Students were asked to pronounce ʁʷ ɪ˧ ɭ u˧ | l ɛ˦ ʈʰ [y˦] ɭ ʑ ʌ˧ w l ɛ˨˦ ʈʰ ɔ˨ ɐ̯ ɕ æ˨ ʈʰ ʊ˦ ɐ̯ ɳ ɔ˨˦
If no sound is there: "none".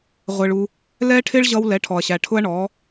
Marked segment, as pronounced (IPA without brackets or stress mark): ɪ˦